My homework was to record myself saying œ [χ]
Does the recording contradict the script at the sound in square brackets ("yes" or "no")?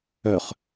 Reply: no